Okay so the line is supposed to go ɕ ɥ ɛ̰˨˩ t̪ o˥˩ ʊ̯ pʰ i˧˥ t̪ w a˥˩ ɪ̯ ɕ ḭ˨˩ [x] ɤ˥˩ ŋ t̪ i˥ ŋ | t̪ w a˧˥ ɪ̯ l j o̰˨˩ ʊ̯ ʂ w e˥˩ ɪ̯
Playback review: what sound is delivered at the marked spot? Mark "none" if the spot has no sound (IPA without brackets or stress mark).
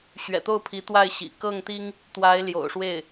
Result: k